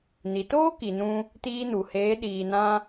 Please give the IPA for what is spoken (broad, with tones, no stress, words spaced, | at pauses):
ni˨toː˦ki˨nũ˧ | tiː˧nu˨heː˨˦ ɗiː˨nã˧